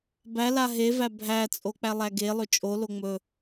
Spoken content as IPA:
b æ l a ɦ e v æ bʱ æ t͡sʼ o k͡p æ lˠ æ ɡ e lˠ ɵ t͡ʃʼ o l o ŋ͡m ɵ

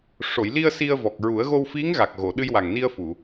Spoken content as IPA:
ʂ o˨˩˨ j l i˧ ə̯ s i˧ ə̯ v ɔ˨˩ k̚ ɹ u˨˩˦ ə̯ ɣ o˧ w f i˧˥ ŋ ɣ a˨˩ k̚ ɣ o˨˩˨ ɗ ɨ˧ j w a˨˩ ŋ n i˧ ə̯ f u˨˩˨

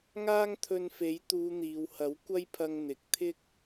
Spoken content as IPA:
ŋ aː˥ ŋ t̪ʰ ɵ˧ n f e˨˥ j t̪ uː˨˧ n̪ iː˨ w h ɐ˨˥ w kʷ ɐ˥ j pʰ ɐ˧ ŋ n̪ ɪ˨ k̚ t̪ʰ ɪ˥ k̚

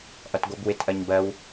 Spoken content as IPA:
ʔ ʌ t ɡʷ ɛ b w ɪ t ʔ ɜ ɲ b ɜ w

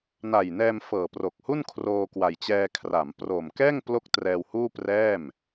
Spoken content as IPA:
n a˨˩ j n ɛː˧ m f ɤː˨˩ p r o˨˩ k̚ h u˥˩ n kʰ r oː˧ k w a˨˩ j t͡ɕ ɛː˧ kʰ r a˩˦ m p r oː˨˩ m k ɛː˥˩ ŋ p l o˥˩ k̚ t r ɛː˧ w h uː˥˩ p r ɛː˥˩ m

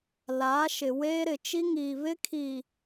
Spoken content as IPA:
l aː˨˦ ʃ ɪ˨ w eː˦ ɾ ɪ˨ t͡ʃ i˦ ŋ iː˨ β ɪ˦ kʰ i˨

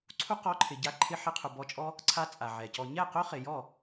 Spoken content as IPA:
ǀʰ u˦ q ɔ˧ ǃʰ ɪ˨ ɟ a˧ ǃʰ ɪ˧ ħ i˧ qʰ u˨ b ɔ˧ t͡ʃʼ ɔ˦ | ǀʰ a˦ t͡sʼ a˨ ʕ ɛ˨ c ɔ˧ ɲ ɛ˦˨ q ʊ˦ χ ɪ˨ j ɔ˦˨

